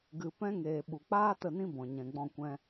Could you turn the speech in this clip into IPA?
ɡɨ˨ pɛ̃˦ŋeː˨ ɓu˨k͡paː˦ tə˦˨nĩ˦bɔ̃˨ ɲɛ̃˨ɡ͡bɔ̃˦˨kʷɛ̃˦

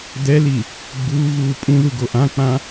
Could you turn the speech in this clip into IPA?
d̪ɛli | ɡ͡buːɣuː pʼũðuɡo ʔãk͡pã

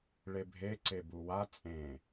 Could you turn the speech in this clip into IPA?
ɭebʱe ǀebuwa t͡sʼẽ

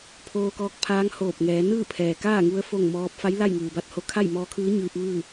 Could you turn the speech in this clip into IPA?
pʰoː˧kɔː˧k̚pʰaː˧˥ŋ hoː˧˩p̚ŋɛː˩˧ nɯː˥˨pʰɛː˩kaː˥˨ŋu˧ə̯ fo˥˨ŋmɔː˧˥p̚ fa˧˥j la˥˨j ŋɯː˩ba˥˨t̚ho˧˥ kʰa˥˨jmɔː˧kʰɯː˧˥ ɲɯː˧p̚ ʋɯː˥˨

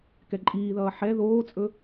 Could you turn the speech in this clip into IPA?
kɛǃʼiːðʌː ħɛ ðoːt͡sʼɵ

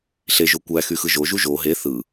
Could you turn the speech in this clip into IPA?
ɬeʒo kʷæxyxɯ ʒoʒu ʒo ɦe θɯ

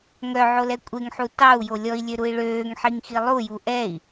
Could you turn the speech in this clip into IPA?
ŋœʕolɛ kʷʼeŋħu tɑu̯jo lʲɔi̯lʲøɾui̯ ɭøːŋħiŋxi lˠuju ʔɛi̯

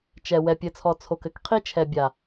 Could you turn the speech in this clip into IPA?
t͡ʃɛ˨ wɛ˨pʲɘ˨t͡sʰɔ˨ t͡sʰo˨kɘ˦k qʰi˦t͡ʃʰɛ˨ bʲa˨

